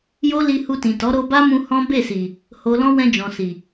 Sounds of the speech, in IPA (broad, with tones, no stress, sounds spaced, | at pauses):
j o˦ l i˧ h u˧ t ĩ˨ t ɔ˨˦ ɾ o˧ b a˦ m ũ˧ h ɔ̃˦ b e˦˨ s i˨ | h o˨ l ɔ̃˧ w ɛ̃˧ d͡ʒ ɔ̃˨ s i˨